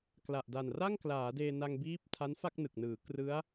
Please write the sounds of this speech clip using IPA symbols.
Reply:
k l a˨˩ ʔ d a˨˩ n r a˥˩ ŋ k l aː˩˦ d eː˧ n a˧ ŋ b iː˦˥ p̚ tʰ a˦˥ n f a˥˩ k̚ n ɯ˨˩ k̚ n ɯː˩˦ k r ɯ˦˥ a̯

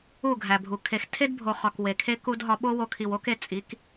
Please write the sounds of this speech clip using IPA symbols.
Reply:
u˦˨ ɡʱ æ˨ bʱ u˨ kʰ e˨ x tʰ e˦ d bʱ o˨ χ ɒ˨ k w e˨ kʰ e˦ k u˦ d ɦ ɒ˧ ɓ o˦ w o˧ kʰ i˨ w o˦ k e˧ t͡sʼ i˨˦ k

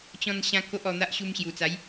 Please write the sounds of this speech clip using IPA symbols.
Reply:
t͡ɕ ɔ̃˧ n ɕ ã˧ k o˦ ʔ ɔ˧ n̪ a˦ ʔ ɕ u˧ m ɕ j u˨˩ t͡s a˨˦ j

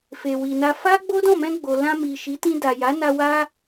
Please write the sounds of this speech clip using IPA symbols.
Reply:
f e˨ w i˨ n a˧ f a˦ ɡ͡b o˦ d ɔ̃˦˨ m ɛ̃˧ ɡ͡b o˨ l ã˧ m i˨ ʃ i˨˦ t ĩ˧ d a˨ j a˨˦ n a˧ w a˦

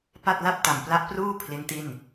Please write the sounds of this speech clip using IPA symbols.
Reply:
p a˥˩ t̚ l a˥˩ p̚ t a˨˩ m p l a˦˥ ʔ p r uː˥˩ pʰ l i˦˥ n t i˥˩ n

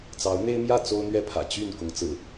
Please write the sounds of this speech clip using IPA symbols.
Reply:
t͡s ɑ˨˦ ʊ̯ n̪ e˦ ɪ̯ m j ä˥˨ t͡s o˦ ʊ̯ n̪ ɥ ɛ˦ pʰ ä̰˨˩ t͡ɕ y˥˨ n k ʊ˨˦ ŋ t͡s ɹ̩˨˩

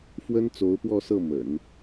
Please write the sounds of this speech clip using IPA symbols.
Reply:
f w ə˥ n t͡s o˧˥ ʊ̯ p w ɔ˥˧ s ɤ˥˩ m ə̰˨˩˦ n

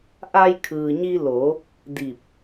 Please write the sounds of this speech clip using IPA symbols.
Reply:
ʔ a˧ j kʰ ɯː˩ ɲ i˧ l o˩˧ | d i˧˩ p̚

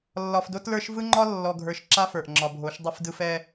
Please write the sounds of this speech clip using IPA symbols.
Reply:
lː ɒ˨ f d o˦ t l ə˞˦ ʃ v ɯ˦ ŋ͡ǃ ɒ˦ lː ɔ˨ ɡʱ ə˞˨ ʃ ǁ a˦ f ə˞˨ ʔ ŋ͡ǁ ɒ˨ bʱ o˨˦ ʃ dˤ ɯ˨ f d ɯ˨ f ɛ˨

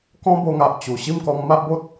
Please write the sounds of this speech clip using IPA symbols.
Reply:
k ɔ̃˦ b o˧ ŋ a˨ ʔ t͡ɕ u˨˩ ɕ i˥˧ m k ɔ˧ ŋ m a˦ ʔ b o˦ t̚

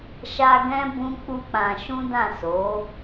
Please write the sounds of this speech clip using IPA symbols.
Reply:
ʃ a˧ ɡ ɛ̃˦ b ũ˦ k͡p u˦ k͡p ã˧ ʃ ũ˦ d ã˦˨ s o˨˦

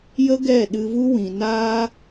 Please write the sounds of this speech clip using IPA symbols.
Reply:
j ə˦ ɡ ɛ˦˨ ɗ ɨ˧ v u˦ w ĩ˨ n aː˦

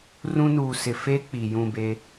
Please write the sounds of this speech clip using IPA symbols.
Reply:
r ũ˦ n uː˨ s ɪ˨ f e˦ k͡p i˨ j ũ˦˨ b e˦

